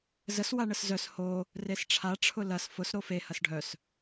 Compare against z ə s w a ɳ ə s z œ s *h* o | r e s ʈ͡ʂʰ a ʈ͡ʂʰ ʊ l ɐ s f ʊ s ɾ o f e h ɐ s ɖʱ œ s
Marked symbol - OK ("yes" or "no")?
yes